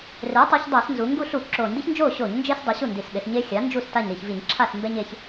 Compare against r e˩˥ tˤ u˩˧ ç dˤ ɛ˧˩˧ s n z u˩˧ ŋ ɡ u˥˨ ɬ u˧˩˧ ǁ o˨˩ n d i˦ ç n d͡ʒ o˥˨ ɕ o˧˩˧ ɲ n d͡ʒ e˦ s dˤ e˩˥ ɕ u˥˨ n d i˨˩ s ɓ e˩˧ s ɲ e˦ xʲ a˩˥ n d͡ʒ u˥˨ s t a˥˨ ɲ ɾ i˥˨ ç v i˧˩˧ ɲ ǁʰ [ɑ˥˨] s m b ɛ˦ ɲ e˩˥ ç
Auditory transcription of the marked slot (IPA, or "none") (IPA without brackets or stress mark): a˥˨